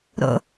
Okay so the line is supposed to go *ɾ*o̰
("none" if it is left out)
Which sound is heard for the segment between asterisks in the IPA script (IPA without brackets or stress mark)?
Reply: ɾ